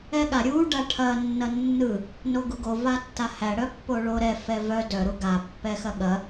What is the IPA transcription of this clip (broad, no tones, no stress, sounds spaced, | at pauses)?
ɛ ɠ a ɾʲ u ɖ a ʈʰ ɐ nː ɐ nː ɯ | n o ɡ u ɡ o v a tː a h æ ɽ œ pː o ɭ o ɾ ɛ f ɛ v œ d œ ɾ u ɡ a pː ɛ x ɐ ɠ ɐ